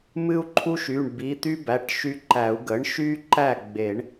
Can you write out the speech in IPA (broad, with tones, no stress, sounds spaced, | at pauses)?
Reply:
m ɨ˥ u̯ ǃʰ u˥ ʃ y˩˧˩ ɳ b i˩˧˩ t̪ y˥ b æ˩˧˩ ʈ ʃ y˧˥ ǃ æ˨˩˦ u̯ ɡ ə˩˥ ɳ ʃ y˥ ǃ æ˥˨ ɡ͡b e˨˩˦ ɳ